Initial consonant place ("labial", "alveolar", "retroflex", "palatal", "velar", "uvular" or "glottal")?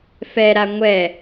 labial